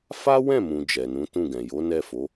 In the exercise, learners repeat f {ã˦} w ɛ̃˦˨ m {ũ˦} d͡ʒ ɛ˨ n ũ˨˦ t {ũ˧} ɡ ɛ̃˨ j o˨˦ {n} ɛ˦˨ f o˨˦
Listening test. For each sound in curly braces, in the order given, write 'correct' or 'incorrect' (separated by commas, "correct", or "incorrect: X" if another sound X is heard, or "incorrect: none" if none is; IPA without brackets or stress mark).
incorrect: a˦, incorrect: ũ˨, incorrect: ũ˦˨, correct